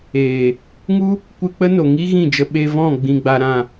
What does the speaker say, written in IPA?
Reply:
eː˨ | ŋu˦ | kʷɨ˧k͡pə˦no˨ŋi˦ ɣĩ˦˨d͡ʒə˧ ɓe˧vɔ̃˦˨ ɡ͡bĩ˧ɡ͡ba˧ɾã˦˨

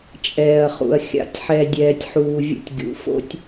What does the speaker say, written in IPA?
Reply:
t͡ʃʼɛː˨ɐ̯χṵ˨ɐ̯ xʲa̰˨tʲħɛ˨dʲɛː˨tʲħuː˨ vʲə̰˦tʲɡʲṵ˨˦ fo̰˦tʲ

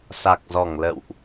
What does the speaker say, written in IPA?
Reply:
sa˨˩k̚zɔ˧˩ŋlə̰˧˨wʔ

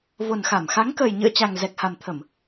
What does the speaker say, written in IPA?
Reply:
vo˨˩nxa˧˩m xa˨˦ŋkəː˨˩jɲɨ̰˧˨ə̯t͡ɕa˨˩ŋ zɛ˨˩k̚ha˨˩mt̪ʰə˧˩˨m

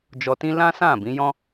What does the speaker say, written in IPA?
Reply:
d͡ʒɔ˧tĩ˦ lã˦sã˦˨bĩ˨˦jɔ̃˦

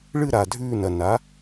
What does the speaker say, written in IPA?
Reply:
ɭɨ˥˨ɾa˨˩ dʱʉː˥˨nɐ˨˩ na˩˥

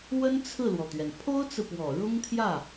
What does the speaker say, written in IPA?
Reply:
wə˥nt͡sʰɹ̩˥˩lwɔ˩t̪ɥɛ˩n pʰo˥ʊ̯t͡sɹ̩˨pwɔ˨˩ ɻʊ˥ŋt̪ʰjä˥˩

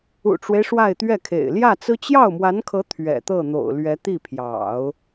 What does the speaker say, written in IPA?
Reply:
ṵ˨˩ʈ͡ʂwe˦ɪ̯ ʂwa˥˧ɪ̯t̪ɥɛ˥˩kʰḛ˨˩ɪ̯ ljä˥˩t͡sɹ̩˥ t͡ɕjɑ˥˩ʊ̯mwa˧˥nkʰɤ˧˥ t̪ʰɥɛ̰˨˩t̪ɤ˥˩ n̪o̰˨˩ʊ̯lɥɛ˧˥t̪i˥˩pʰjɑ̰˨˩˦ʊ̯

